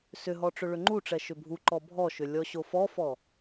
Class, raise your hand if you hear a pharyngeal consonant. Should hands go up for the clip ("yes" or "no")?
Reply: no